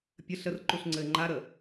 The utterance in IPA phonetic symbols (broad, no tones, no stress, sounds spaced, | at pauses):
pʲ ə ɬ ə r ǃ u ɬ ŋ͡ǀ ɘː ŋ͡ǃ a ɾ əː